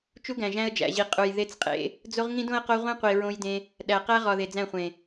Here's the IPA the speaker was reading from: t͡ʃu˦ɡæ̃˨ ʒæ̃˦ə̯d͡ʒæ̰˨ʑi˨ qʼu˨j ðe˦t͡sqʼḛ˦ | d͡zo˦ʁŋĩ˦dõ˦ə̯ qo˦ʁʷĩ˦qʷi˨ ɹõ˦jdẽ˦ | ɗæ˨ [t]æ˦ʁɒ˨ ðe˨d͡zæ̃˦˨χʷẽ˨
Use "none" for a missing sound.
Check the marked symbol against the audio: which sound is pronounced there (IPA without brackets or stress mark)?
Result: q